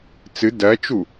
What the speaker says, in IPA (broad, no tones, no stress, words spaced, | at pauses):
t͡sɨ dɜt͡ʃu